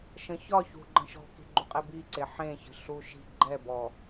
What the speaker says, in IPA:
ʃ ə̃ ç ɒ ç ṳ ɡ͡ǃ ə̃ ʃ ɔ̤ k i̤ ɡ͡ǃ u qʼ ɛ b i ǀ e ħ ẽ ç ə̤ ɬ u ʃ i̤ ɡ͡ǃ ɛ b ɔ

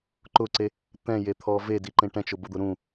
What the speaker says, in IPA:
ǃ ʊ ǀ e | t̪ ɛ̃ j e t̪ʰ ɔ v e d i ǃ ẽ ʈ ɛ̃ t͡ʃ ʊ b ʊ d̪ ʊ ɾ ũ

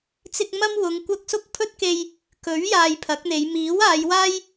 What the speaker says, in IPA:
t͡s ɪ˧ k̚ m ɐ˥ m w ʊ˨˧ ŋ kʷ ɐ˧ k̚ s ʊ˥ k̚ pʰ ɵ˥ t̚ k e˧ j | k ɵ˨˥ ɥ j aː˧ j pʰ ɐ˨˥ k̚ n̪ e˨˧ j m iː˨˥ w aː˨˧ j w aː˥ j

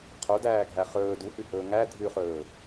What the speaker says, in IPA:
qʰ o d æː ɡʱ æ χ ɵː d u h ʉ h ɵː ŋ æ dʱ ʉ χ ɵː

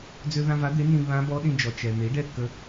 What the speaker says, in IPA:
d͡z ø˧ ð ã˧ v a˩˥ d̪ e˩˥ n ĩ˧ β ã˧˥ b ɔ˧˥ ɗ ĩ˧ d͡ʒ ɔ˩ t͡ʃ ɛ˩ n̪ e˩˥ i̯ ɖ ɛ˥˨ kː ə˧

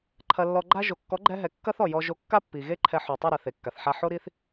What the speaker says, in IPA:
ǃʰ ɐ˧ lː ɔ˧ ɡ͡ǃ a˦ ʒ o˨ kː ɔ˨˦ ɡ͡ǃ ɛ˧ ɦ ɛ˨ kː ɐ˦ θ ɔ˨ j ɔ˧ ʒ o˧ kː a˦ pː i˨ ɣ e˦ ǃʰ ɛ˧ ħ o˨ tˤ o˦˨ ɾ a˨ θ e˨ kː a˨ θ ħ a˧ ħ o˦ ɾ i˦ θ

